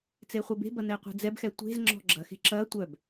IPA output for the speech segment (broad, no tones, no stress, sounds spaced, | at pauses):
t͡s e χʷ e b e̤ b ɐ n ɛ qʷ ɛ̤ d͡z ɛ b x ɛ tʷ e̤ z ŋ͡ǁ ɔ̤ ɡ͡ǁ ɐ x e̤ ǁ ɐ tʷ œ b